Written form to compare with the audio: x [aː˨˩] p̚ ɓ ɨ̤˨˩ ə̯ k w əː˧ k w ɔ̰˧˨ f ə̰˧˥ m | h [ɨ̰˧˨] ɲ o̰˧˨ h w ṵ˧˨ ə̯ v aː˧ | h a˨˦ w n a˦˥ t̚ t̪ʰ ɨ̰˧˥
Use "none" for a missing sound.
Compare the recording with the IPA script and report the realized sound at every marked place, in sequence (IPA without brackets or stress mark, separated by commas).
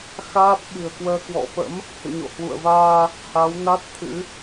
aː˦˥, ɨ̰˧˨